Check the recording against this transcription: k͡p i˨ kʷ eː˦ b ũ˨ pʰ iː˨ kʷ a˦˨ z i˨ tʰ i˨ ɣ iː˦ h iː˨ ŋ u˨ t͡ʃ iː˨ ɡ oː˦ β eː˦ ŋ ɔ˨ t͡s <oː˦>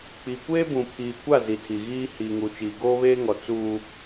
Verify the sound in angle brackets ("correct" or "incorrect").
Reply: incorrect